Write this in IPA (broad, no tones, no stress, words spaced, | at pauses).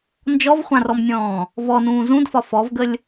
nd͡ʒɔvχʷãrɔmnʲɔ̃ː | vɔnũː zũdfɒ fɔvɡəlʲ